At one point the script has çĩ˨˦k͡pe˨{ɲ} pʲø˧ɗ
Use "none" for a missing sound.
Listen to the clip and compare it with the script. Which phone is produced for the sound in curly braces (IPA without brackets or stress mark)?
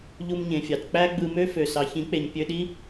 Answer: ɲ